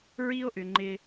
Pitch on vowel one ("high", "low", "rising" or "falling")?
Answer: high